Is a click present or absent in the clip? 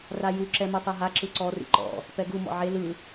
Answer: present